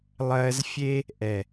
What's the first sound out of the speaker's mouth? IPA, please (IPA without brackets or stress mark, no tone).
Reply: lˠ